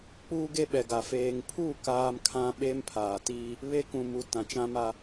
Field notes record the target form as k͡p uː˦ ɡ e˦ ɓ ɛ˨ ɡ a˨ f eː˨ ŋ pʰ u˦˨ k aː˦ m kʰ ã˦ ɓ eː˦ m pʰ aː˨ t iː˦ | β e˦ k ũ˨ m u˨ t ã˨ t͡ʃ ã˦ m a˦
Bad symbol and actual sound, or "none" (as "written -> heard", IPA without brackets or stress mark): none